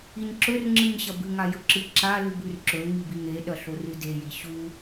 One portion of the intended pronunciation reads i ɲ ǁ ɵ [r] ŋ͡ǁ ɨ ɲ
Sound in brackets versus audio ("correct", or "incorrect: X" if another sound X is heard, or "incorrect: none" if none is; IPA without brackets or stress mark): correct